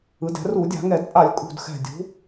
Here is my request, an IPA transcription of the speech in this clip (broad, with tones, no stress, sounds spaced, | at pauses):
ɯ˩˧ d ɛ̤˩˧ r u˧˩˧ dʲ a̤˧˩˧ ŋ ɛ˧˩˧ d pʼ a˧˩˧ lʲ kʼ ṳ˨˩ d x ɛ̤˨˩ dʲ ṳ˩˧